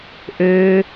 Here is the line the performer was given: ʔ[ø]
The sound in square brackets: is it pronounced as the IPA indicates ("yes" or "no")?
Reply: yes